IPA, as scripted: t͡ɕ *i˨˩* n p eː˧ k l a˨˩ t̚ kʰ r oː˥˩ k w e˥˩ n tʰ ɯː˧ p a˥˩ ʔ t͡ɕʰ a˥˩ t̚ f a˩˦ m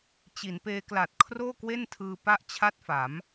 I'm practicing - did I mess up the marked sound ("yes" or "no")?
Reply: yes